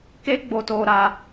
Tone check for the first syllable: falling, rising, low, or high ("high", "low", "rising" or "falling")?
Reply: high